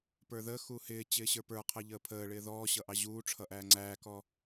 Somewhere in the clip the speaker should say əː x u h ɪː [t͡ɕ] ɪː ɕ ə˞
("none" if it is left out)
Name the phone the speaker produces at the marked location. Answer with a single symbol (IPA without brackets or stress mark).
t͡ɕ